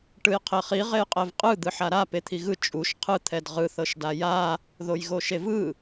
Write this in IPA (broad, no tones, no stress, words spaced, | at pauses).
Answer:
ʈɯjqʰeχi ʁejqʼɛvqʼɯ d̪ɯħaɾa pet̪ʰiɣɯ t͡ʃʼuʃ qʰɯ t̪ʰɛdʁɯ θɤʃdaja | ðojɣoʃevɯ